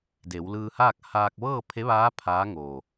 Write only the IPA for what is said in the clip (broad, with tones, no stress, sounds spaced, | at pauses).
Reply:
d e˩˧ w l ɯː˧ h aː˥˨ k̚ h aː˧ k̚ ʋ ɤː˥˨ pʰ e˧˥ ʋ aː˧˥ pʰ aː˧˥ ŋ o˧˩